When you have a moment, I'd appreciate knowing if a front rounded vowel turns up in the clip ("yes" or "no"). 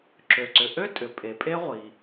yes